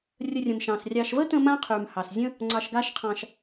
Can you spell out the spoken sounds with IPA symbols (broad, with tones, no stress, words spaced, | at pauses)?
rʲə˧rʲə̃˨mʃɑ̃˨srʲɑ˧ʃ və˦tə̃˧ mã˦qʰy˨mhɑ˨szʲə̃˦ | ŋ͡ǀɑ˧ʃɡa˦ʃqʰɑ̃˧ʃ